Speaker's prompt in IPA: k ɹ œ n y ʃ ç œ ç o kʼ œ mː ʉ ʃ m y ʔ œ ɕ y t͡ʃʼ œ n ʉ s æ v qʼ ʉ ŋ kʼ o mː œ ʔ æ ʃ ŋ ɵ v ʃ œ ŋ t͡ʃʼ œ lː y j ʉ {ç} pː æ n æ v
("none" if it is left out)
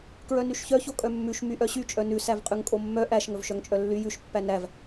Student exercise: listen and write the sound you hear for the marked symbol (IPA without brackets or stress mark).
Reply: ʃ